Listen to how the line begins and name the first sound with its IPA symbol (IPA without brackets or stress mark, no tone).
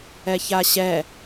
ɛ